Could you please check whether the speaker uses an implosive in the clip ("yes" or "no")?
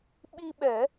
yes